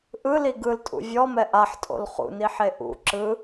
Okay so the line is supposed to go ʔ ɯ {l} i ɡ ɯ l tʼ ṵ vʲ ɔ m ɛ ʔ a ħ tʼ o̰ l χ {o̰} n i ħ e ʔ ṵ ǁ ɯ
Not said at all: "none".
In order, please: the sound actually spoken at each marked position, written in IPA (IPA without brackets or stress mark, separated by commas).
l, ṵ